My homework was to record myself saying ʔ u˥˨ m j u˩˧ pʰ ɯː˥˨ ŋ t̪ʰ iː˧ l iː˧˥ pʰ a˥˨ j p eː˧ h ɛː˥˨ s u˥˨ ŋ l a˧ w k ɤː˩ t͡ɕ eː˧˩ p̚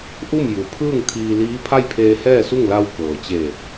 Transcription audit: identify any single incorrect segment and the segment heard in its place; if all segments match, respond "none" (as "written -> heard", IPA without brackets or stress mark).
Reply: p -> pʰ